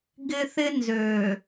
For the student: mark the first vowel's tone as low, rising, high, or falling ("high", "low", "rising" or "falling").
high